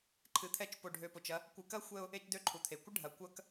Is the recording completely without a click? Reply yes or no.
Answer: no